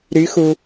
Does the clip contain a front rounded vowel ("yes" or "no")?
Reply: yes